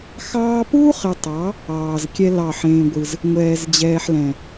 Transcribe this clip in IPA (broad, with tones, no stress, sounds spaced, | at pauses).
x ɑː˦ p uː˦ χ e˨ tˤ ɑ˨˦ | ɑː˨ z kʲ ɛ˦ l ɑ˦˨ ħ ẽː˦ ɡʷ ɯ˦ z | ŋʷ ɛː˨ z d͡ʑ ɛː˨ ħ l ɛ̃˨